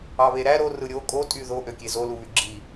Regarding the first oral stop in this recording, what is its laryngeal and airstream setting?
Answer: ejective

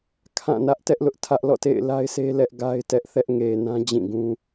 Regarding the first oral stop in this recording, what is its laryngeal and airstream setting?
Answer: aspirated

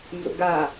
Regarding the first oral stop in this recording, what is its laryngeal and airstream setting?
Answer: plain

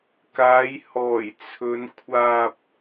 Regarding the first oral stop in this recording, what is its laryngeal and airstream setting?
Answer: plain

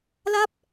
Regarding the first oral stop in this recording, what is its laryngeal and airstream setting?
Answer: plain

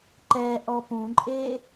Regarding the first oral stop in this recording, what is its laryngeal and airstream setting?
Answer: click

